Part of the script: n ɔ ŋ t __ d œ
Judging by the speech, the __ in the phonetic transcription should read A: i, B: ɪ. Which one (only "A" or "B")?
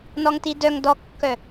A